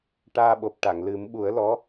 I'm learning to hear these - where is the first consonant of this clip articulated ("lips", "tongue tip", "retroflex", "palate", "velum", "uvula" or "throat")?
retroflex